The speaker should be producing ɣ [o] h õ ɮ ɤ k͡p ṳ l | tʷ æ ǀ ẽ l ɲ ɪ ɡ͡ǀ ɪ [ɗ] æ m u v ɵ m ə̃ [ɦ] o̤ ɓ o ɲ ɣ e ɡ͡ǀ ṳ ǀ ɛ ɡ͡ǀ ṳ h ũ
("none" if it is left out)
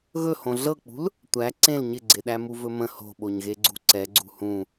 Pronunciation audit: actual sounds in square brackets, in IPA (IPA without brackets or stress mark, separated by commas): ɵ, ɗ, h